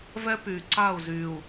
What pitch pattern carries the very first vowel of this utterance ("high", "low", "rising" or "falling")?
high